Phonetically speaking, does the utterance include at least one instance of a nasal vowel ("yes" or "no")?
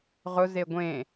yes